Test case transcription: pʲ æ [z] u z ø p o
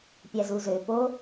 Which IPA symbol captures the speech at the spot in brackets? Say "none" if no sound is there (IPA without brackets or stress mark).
z